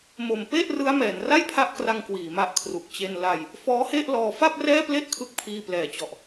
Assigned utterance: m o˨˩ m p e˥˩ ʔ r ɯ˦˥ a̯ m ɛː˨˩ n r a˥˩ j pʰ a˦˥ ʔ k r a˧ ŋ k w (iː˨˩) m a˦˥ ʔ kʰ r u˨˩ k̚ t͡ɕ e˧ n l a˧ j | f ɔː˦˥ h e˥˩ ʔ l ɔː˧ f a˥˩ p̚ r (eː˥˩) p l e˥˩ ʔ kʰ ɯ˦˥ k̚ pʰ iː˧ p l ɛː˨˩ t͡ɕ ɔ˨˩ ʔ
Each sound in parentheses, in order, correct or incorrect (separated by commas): correct, incorrect